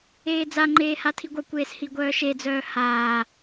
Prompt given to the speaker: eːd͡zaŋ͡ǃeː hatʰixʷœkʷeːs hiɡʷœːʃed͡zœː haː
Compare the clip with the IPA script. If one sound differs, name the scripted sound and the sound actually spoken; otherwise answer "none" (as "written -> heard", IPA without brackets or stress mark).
xʷ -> ɡʷ